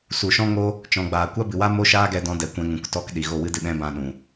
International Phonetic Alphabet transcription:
su˨ʃɔ̃˦ŋo˦ | t͡ʃɔ̃˨ɡ͡baː˨ kʷa˦bɨ˨wa˦ mo˦ʃaː˦ ɡɛ˧dɔ̃˧dɛ˨ kʷɛ̃˧ŋũ˨ktɔ˦k ɗi˨ ɣo˦˨wɨ˦dɨ˧ ɗɛ̃˦bã˧ ɗũ˨

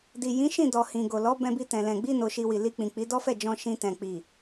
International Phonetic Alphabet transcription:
di˨ jĩ˨˦ʃĩ˦˨dɔ˨ hĩ˨ɡo˨lɔ˨˦ bɛ̃˧bi˧tɛ̃˨lɛ̃˨ ɡ͡bi˧no˨ʃi˨ wi˨li˧k͡pĩ˨ k͡pi˨˦ dɔ˦fɛ˦˨d͡ʒɔ̃˧ ʃĩ˧tɛ̃˨ k͡pi˨

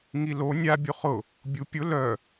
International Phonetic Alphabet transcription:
ŋilo nʲa bʲuχʊ | bʲupʲʊ lœ

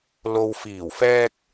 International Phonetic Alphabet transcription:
lo˨wfiː˨˩wfɛː˧k̚

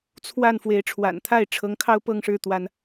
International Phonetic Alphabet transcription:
t͡sʰwa˥˨n fwe˨˦ɪ̯ʈ͡ʂʰwa̰˨˩nt̪ʰa˥˨ɪ̯ ʈ͡ʂʰɤ˨˦ŋkʰɑ˦ʊ̯pɤ˥˨ŋʂɻ̩˥˨ t̪wa˦n

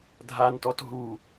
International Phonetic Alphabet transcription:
dʱantɔt ɦu

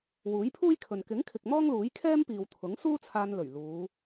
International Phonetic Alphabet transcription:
wuː˨˥jpʰuː˥jkʰɵ˨n kɪ˨˥ŋkʰɪ˨k̚ mɔː˥ŋluː˨˥jkʰɛː˥mpiː˨w t̪ʰʊ˨˥ŋsuː˥t͡sʰaː˧n lɵ˨˩ɥ luː˨˧

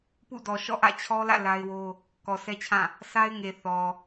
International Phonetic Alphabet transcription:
pṵ˦˨ dɔ˨ʃɔ̰˦˨ʔä̰˦˨ t͡ɕʰɔ˦lä̰˦˨ la˦ɪ̯wo˦ | kɔ˨sɛ˦t͡ɕʰã˦˨ | sa˦ɪ̯ŋe˨ θɔ˨

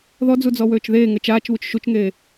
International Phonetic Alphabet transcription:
ðɔd͡zud͡zɔwøːt͡ʃ ðeːŋə t͡ʃaːt͡ʃβut͡ʃ ʃut͡ʃŋeː

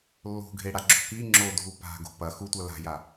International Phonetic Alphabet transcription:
lːo̤ɡʱeɽa ɡ͡ǁo̤ki ŋ͡ǁodʱu pa̤ɡo̤ pɐ xutʷɐ la̤ja

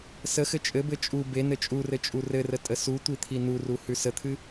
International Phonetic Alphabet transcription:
səxɘ t͡ʃʼɘbɘ t͡ʃʼu be nɘt͡ʃʼurɘ t͡ʃʼurɘrə tʼəsutʷi t̪ʰinuru hʉsət̪ʰɨ

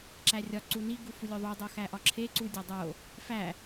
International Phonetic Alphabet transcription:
ǁærʲɒ ǀuni ɡufulʲoðˤu dˤoxæʔɒǁʰe ǀudʲɒdˤo | fæ

